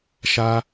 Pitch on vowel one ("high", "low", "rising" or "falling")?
high